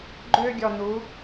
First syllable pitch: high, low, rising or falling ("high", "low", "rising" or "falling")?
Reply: high